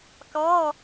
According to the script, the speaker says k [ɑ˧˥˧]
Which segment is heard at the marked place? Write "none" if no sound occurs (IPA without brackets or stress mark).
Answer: ɑ˧˥˧